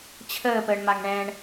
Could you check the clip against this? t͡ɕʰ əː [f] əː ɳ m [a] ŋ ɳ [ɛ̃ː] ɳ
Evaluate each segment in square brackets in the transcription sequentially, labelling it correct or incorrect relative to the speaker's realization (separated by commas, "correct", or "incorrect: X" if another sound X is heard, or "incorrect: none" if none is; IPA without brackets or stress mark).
incorrect: p, correct, correct